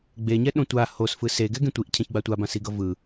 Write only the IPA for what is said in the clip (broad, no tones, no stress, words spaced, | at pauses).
ɡ͡beɲɛ ɗõtʷa hos fɯseɡɛ ɡẽtʷiʔ cʰɛ̃çɡ͡batʷa bãsiɡʌvɯ